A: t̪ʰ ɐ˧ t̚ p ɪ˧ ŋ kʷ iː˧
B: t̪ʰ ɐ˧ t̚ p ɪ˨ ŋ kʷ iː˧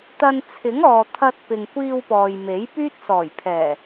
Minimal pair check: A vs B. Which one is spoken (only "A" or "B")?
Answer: B